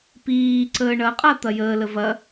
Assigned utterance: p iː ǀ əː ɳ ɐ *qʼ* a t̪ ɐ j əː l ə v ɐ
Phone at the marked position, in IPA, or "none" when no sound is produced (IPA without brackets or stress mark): qʼ